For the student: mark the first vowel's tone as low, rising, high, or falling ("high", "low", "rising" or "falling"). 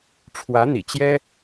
rising